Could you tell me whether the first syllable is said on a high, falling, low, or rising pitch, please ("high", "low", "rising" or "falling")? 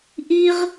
high